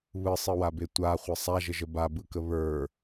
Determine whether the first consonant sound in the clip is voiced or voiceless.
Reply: voiced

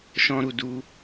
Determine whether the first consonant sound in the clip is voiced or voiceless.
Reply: voiceless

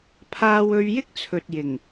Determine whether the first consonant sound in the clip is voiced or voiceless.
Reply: voiceless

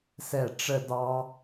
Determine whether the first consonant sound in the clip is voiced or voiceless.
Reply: voiceless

